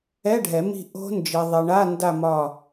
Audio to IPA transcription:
ɛ˧˥˧ ɖʱ ɛ˨˩˦ m i̤˦˨ ʔ o̤˦˥ n d͡ʒ i˨ ðˤ i˨ ɳ a˧˥˧ n d a˦˨ m ɒ˦˨

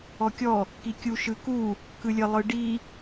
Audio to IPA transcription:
ɔ kʲ ɔ | k i kʲ u ʃ ɯ k u | k ɯ lʲ ə lˠ ɯ ɖ i

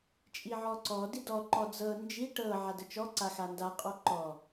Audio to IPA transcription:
t͡ʃʼ i ʕ ɔ ǀ ɔ d i d ɔ ǃ ɔ d͡z ɤ n d͡ʒ i ʈ ɤ ʕ a d ə t͡ʃ ɔ ǀ a x a n d a qʼ ɔ ǃ ɔ

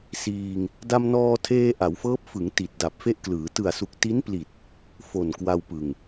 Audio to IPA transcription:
s iː˧ ŋ | d a˧ m n ɔː˧ tʰ eː˧ ʔ a˩˦ w f ɤː˦˥ p̚ f ɯ˩˦ ŋ t i˨˩ t̚ d a˨˩ p̚ f e˥˩ ʔ k l ɯː˩˦ t ɯ˨˩ a̯ s u˨˩ k̚ t i˦˥ n p l i˨˩ t̚ | f o˨˩ n k w a˧ w p ɯ˨˩ ŋ

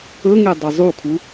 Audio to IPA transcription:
ɵ ŋ e dˤ ɵ zˤ u kʰ u

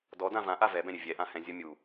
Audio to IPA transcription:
d ɔ d ã v ã ʔ a v ɛ b ɛ̃ ɾʲ ɘ vʲ ɛ ʔ ã h ɛ̃ zʲ ɔ mʲ u

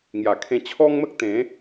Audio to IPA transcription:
ŋ j a˨˩ kʰ ẽ˧ t͡ɕʰ ɔ˦ ŋ m ə˦ k̚ t̪ ẽ˨˦

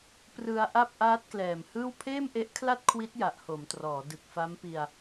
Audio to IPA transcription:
p r ɯ˧ a̯ ʔ a˥˩ p̚ ʔ aː˦˥ t̚ k l ɛː˨˩ m h ɯː˥˩ w pʰ eː˥˩ m ʔ e˦˥ ʔ kʰ l a˥˩ t̚ kʰ w i˦˥ t̚ j a˨˩ ʔ h o˩˦ m t r ɔː˩˦ d ɯ˨˩ k̚ f a˦˥ m p i˧ a̯

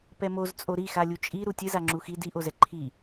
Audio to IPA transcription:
p ɛ m o z t͡sʼ o ɾ i x a lʲ u t͡ʃʼ i ɾ u tʲ ɨ z a ŋ͡ǁ u x i d i ʔ o z ɛ ǃʰ i

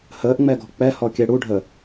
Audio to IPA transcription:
h əː ʔ ŋ͡m ɛ ɡ ɔ̤ k͡p ɛ h ɔ kʲ ɛ ɽ u ɖʱ ə

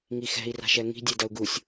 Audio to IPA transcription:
ŋ i x ɛ̤ i̯ r a̤ ʃ ɛ ŋ i̤ dʲ e d ɐ u̯ ɡ u sʲ

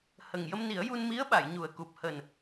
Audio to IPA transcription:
h ə˨˩ ŋ j ə˧ m n i˨˩˦ ə̯ j u˧ n m i˧˥ ə̯ ɓ a˨˩˨ j ɲ u˨˩ ə̯ k u˨˩ p̚ h əː˨˩ n

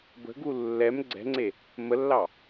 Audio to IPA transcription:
b ə̤ ɡ u lː ɛ m ɡ͡ǀ ɛ̤ ŋ͡ǀ e | m ə lː ɑ

